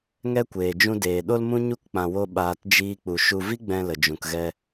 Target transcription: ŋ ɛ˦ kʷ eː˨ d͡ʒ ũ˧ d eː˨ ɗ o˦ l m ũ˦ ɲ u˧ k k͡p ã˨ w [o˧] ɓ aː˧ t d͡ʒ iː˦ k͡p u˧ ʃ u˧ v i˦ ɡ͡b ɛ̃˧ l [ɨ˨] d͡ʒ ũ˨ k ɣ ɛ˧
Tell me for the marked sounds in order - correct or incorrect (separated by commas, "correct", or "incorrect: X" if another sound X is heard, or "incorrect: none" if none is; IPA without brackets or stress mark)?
correct, incorrect: ə˨